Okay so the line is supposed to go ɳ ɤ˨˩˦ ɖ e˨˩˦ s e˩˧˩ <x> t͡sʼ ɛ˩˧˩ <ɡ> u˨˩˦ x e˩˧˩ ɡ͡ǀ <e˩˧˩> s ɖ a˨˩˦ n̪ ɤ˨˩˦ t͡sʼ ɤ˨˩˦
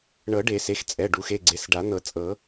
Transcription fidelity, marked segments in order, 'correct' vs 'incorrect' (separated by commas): correct, incorrect, correct